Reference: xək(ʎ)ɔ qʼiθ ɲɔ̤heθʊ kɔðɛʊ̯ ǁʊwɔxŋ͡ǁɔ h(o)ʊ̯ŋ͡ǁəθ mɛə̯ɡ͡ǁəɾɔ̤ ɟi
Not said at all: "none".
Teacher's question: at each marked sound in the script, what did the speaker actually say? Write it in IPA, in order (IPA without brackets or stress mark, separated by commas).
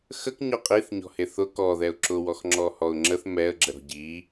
ɲ, ɔ